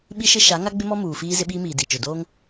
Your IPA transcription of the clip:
ɓ i˦ ʃ ɪ˦ ʃ a˨˦ ŋ a˦ ɡ͡b ɪ˦ m ɔ˦ m uː˨ f iː˦ z ɪ˦ ɓ iː˦ m iː˨ d i˨ t͡ʃ ʊ˨ d oː˦ ŋ

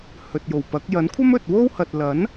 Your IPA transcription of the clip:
h ɵ˨ t̚ j o˨˩ w p ɐ˨˥ k̚ j ɐ˨˥ n kʷʰ ɐ˥ m ɵ˨ t̚ w o˥ w h ɐ˨ t̚ l ɐ˨˥ n

